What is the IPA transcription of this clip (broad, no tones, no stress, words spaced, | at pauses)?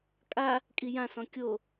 kʼa | kʼijã sɔ̃kʲo